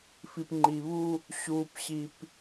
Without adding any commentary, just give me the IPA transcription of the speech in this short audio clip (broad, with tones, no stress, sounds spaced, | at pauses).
f i˨ p ŋ͡ǃ i˨ β u˦ | ɕ uː˦ p ɕ i˦ p